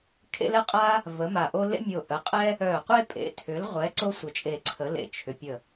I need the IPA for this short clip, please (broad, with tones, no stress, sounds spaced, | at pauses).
kʰ ḛ˥ l ɛ˥ qʼ a˥ | v ə˨˥ m a˧˩ ʔ o˥ l ḛ˥ mʲ o˧˩ ʔ ə˨˥ qʼ ɛ˥ | œ˧˩ qʷ e˥ pʼ ḛ˨˥ tʰ ʏ˨˥ l ʁʷ ɛ˨˥ ǀ o˥ sʷ ə˧˩ t͡ʃʼ e˧˩ ǀʰ ə˨˥ l ḛ˧˩ t͡ʃʰ ʏ˨˥ pʲ ə˧˩